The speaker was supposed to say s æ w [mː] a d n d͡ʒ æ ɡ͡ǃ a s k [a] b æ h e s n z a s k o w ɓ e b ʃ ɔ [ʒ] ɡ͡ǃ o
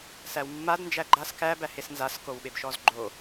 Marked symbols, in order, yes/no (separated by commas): yes, no, no